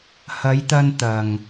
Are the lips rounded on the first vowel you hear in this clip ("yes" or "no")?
no